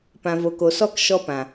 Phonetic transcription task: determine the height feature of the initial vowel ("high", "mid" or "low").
low